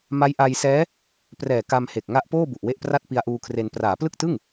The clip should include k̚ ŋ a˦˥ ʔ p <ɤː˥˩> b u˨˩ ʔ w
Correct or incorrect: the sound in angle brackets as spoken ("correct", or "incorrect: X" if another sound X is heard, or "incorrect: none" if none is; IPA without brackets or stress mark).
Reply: incorrect: oː˥˩